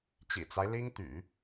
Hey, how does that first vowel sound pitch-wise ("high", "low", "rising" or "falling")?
low